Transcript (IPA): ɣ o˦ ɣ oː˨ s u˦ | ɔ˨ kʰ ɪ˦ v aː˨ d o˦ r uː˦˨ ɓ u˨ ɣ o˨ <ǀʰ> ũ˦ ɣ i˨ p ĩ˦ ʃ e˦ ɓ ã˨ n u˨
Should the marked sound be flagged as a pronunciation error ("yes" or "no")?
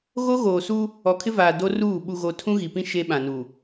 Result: yes